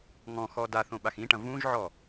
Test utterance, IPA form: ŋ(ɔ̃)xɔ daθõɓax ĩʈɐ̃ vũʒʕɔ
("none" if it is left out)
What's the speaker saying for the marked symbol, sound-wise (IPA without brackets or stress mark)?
ɔ̃